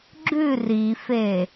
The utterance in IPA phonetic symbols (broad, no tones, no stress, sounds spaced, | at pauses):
ɡ͡ǁ ʉ r i f e